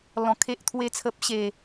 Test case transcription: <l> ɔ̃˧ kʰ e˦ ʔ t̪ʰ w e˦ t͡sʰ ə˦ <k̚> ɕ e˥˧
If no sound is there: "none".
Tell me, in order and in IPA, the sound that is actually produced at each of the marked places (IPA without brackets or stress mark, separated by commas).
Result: l, p̚